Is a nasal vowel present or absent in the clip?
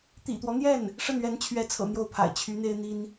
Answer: absent